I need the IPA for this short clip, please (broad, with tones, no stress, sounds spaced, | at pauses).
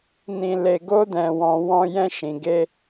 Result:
n ĩ˧ l e˧ ɡ o˦ d ɛ̃˧ w ɔ̃˧ w ɔ̃˧ j ɛ̃˧ ʃ ĩ˨ ɡ e˧